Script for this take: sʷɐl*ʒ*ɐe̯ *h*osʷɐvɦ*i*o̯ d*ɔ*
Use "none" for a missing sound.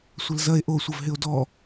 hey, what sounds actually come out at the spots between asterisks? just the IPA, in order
z, ʔ, ɪ, ɔ

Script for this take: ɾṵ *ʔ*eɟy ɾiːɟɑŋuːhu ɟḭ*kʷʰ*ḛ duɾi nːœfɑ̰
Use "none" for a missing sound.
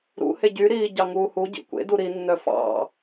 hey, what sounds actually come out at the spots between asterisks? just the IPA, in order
h, kʷ

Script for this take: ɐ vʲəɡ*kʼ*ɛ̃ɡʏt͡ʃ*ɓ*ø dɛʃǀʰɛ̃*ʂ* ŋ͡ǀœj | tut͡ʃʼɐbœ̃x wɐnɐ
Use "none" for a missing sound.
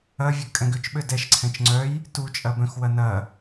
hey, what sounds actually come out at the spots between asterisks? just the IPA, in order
kʼ, ɓ, t͡ʃ

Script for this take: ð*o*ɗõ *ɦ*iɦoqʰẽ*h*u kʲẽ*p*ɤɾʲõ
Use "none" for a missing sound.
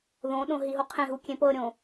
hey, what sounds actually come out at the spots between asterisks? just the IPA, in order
õ, ɦ, ɦ, p

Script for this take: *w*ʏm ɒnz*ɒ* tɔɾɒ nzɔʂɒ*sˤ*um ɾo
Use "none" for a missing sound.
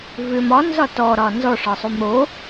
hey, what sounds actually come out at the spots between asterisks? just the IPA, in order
v, ɒ, sˤ

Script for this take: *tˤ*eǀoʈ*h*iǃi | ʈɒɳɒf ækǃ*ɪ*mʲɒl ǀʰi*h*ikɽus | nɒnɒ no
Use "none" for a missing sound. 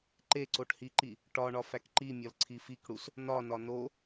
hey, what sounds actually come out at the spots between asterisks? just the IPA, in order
ǃ, h, i, f

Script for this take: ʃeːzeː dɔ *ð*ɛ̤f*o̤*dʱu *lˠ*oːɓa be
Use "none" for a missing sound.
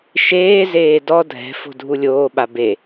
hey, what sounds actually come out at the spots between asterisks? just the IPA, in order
dʱ, o̤, lʲ

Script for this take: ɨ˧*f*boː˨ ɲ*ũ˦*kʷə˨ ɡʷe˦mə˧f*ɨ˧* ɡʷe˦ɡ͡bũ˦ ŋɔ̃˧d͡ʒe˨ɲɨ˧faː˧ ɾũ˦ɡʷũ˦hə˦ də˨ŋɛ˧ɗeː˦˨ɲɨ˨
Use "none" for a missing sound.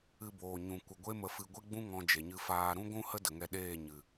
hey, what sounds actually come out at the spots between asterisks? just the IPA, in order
none, ũ˨, ɨ˧

